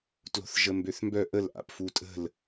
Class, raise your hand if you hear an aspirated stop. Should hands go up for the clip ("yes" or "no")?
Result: no